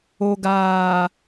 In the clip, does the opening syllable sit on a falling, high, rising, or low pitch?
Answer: low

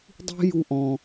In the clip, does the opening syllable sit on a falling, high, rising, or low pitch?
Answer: high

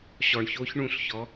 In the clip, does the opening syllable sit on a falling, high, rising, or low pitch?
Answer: low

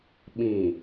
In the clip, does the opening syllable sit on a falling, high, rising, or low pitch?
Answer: low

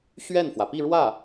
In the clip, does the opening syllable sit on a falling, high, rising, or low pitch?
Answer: falling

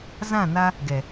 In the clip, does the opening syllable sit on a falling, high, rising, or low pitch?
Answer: falling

